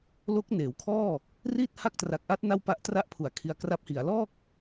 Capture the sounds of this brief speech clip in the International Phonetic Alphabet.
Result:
lo˦˥k̚ neː˩˦wkʰɔː˥˩ | riː˥˩t̚ha˦˥k̚tra˨˩k̚ʔa˦˥t̚ na˥˩wpa˦˥ʔtra˥˩ʔpʰu˩˦a̯ kʰi˧a̯kra˦˥p̚hi˩˦a̯ lɔː˥˩k̚

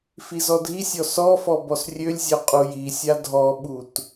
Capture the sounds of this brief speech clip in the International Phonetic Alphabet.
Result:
fizɔdʱisʲɔ sɔfɔ bɔsrʲølʲzʲœ qʼujisʲa dʱɔɓut

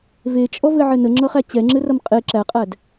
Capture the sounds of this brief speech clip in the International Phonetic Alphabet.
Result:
vet͡ʃʼɔvɘʕɘ nəŋ͡ǁʌχæ t͡ɕɛŋ͡ǁɘrʌm qʼe ǁæqʼæd

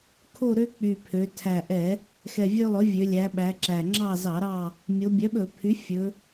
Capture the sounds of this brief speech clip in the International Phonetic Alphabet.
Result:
kʰo˦˨ɾø˦ k͡py˨˩pʰø˩˧ tʰæ˨˩ʔɛ˧˩˧ | xɛ˨˩vʲø˦lˠɵ˩˥vʲø˩˧ lʲæ˩˧ɓæ˩˧ ǁæ˨˩ ŋ͡ǁɑ˦˨zɑ˧˩˧ɾɑ˦˨ | mʲo˩˧bʲœ˩˥ɓɵ˧˩˧ pʰy˩˥fʲɵ˩˧

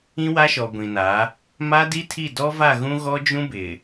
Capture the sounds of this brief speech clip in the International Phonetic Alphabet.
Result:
ĩ˦wa˦ʃɔ˨ ɡʷĩ˨na˨˦ | ma˦di˦tʰi˦˨ dɔ˦va˦˨ɣũ˦ ɣɔ˦d͡ʒũ˦bɪ˨

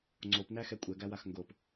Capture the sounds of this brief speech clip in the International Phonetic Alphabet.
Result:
ŋ͡ǀopnæxɛ kʷʼɛɡæwax ŋɡop

